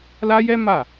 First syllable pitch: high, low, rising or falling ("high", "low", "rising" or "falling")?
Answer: high